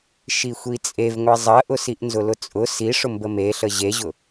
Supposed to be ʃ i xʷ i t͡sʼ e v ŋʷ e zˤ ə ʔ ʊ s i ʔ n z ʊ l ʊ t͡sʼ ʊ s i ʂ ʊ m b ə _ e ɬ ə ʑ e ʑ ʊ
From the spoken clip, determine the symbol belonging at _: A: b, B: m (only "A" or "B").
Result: B